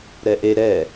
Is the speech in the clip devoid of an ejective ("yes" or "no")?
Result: yes